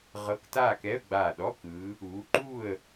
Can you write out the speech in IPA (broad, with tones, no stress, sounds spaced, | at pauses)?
ʁ ɤ˧˥˧ k t aː˥˨ k ɛ˧˥˧ ə̯ ɡ͡b aː˧˩ ɗ ɔ˧˥˧ k ɯː˨˦ | uː˨˦ ǃ uː˥˨ ə̯